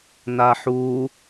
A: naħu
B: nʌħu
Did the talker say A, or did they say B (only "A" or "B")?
A